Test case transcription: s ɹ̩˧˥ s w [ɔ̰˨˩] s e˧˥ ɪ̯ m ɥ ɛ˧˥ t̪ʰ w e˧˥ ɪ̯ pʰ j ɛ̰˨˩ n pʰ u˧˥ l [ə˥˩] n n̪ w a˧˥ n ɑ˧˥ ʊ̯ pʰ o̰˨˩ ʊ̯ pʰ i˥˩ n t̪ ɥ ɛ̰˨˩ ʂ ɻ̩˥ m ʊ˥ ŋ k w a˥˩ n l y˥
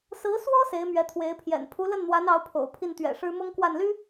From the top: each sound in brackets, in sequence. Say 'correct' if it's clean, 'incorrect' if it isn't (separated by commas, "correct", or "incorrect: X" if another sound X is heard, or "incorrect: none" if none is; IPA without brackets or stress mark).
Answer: incorrect: ɔ˥, correct